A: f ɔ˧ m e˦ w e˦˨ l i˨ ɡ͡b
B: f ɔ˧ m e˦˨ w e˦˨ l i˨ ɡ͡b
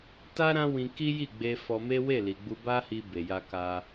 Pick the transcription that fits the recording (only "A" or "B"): A